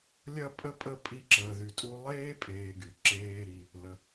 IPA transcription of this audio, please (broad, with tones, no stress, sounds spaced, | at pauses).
lʲ ɐ˦ pʼ ə˥ pʼ ə˥ pʼ i˦ ǁ əː˨ ð y˨ tʼ u˦ lˠ eː˥ pʼ eː˨ ɡ y˩ ǁ eː˨ ɾ i˩ | l ə˩